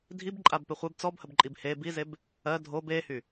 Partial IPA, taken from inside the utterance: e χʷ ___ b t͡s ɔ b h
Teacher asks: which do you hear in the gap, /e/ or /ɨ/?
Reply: e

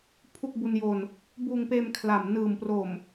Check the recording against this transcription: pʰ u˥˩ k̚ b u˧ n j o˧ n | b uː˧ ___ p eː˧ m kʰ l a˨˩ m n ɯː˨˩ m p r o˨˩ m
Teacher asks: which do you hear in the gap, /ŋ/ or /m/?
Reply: ŋ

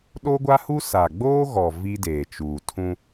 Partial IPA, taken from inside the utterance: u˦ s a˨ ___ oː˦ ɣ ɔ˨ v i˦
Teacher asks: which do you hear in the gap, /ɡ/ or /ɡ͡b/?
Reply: ɡ͡b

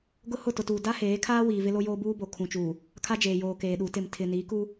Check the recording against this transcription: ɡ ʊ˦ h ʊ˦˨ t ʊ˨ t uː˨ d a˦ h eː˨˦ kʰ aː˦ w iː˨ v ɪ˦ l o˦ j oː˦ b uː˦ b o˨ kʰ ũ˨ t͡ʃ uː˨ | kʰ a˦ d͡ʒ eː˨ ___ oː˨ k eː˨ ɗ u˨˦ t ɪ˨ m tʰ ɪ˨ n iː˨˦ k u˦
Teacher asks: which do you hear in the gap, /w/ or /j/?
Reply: j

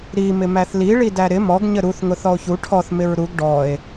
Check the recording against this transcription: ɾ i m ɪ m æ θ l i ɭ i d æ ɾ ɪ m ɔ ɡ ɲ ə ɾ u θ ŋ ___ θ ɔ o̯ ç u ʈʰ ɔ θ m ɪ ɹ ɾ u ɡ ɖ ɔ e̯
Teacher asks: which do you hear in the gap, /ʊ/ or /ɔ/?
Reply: ʊ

